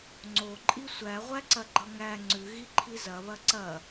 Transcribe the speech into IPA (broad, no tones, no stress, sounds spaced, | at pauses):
ŋ͡ǀ o ǃʼ i sʷ æ ʁʷ æ ǀ ɐ ɡ͡ǃ ʌ ŋ æ ŋ͡ǀ ʉ ɣ i ǃʰ i z ɐ β ɐ ǀ ɐ